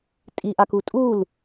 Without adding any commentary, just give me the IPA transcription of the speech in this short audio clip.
tʼ i ʔ a k u tʼ u l

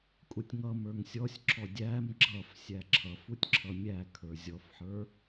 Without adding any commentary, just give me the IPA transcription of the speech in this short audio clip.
kʼ u tʲ ŋ ʌ m ə˞ ŋ sʲ ɔ sʲ ǁ ɔ dʲ æ m ɡ͡ǁ ʌ f sʲ æ ǁʰ ʌ f u tʲ ǁʰ ʌ mʲ æ kʰ ə˞ zʲ ɔ f ħ ə˞

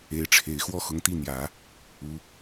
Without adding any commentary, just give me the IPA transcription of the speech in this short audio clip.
e˧˥ ɪ̯ ʈ͡ʂʰ e˨˩ ɪ̯ x w ɔ˥˩ x ʊ˧˥ ŋ t̪ i˥˩ n̪ j ä˨˩˦ | u˧˥

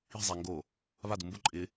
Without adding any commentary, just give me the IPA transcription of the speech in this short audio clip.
i̤ zˤ a ŋ ɡ o | β a d u m b ʊ ǃʼ ɪ

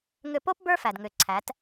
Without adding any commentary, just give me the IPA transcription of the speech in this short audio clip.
ŋ ʏ˧ p o˦ p b ə˞˦ f æ˨ d ŋ ʏ˨ ǀʰ æ˨˦ t

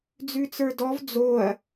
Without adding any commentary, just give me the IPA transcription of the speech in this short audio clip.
d͡z ʉ t͡s ə˞ d ɔ v d͡z o ɐ̯

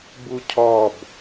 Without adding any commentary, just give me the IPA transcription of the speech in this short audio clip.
b u cʰ ɔ b

